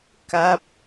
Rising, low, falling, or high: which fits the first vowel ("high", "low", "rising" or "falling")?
falling